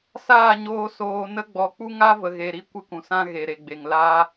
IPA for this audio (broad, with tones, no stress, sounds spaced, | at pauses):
s aː˦˨ ɲ oː˧ s oː˧ n ə˦ ɡ͡b ɔ˨˦ k͡p u˦ ŋ a˦ v ə˨ ɣ e˨ ɾ i˦ kʷ ɨ˧ k ũ˨ s ã˦ ɣ e˨ ɾ e˨ ɡ͡b e˨ ŋ l aː˦